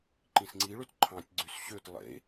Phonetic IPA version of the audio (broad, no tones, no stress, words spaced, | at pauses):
ǃĩsŋ͡ǀiɭøt ǃʰɑ̃tʲɡ͡ǀys ɕøt lˠḛ